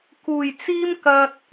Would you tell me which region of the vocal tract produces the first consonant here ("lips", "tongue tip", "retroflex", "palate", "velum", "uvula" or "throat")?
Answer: velum